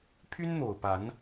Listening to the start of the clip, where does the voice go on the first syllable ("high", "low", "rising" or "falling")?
high